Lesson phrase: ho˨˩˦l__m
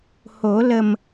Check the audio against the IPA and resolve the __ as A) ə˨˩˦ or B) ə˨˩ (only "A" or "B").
B